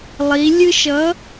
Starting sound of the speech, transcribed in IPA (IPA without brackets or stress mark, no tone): lˠ